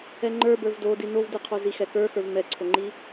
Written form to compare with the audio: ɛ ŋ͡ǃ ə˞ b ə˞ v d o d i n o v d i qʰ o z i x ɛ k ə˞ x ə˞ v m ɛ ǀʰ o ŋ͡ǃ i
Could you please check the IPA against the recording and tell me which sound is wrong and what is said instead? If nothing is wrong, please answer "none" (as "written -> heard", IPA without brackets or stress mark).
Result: none